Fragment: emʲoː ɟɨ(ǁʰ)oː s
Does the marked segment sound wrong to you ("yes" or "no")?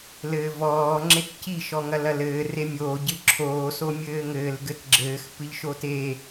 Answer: no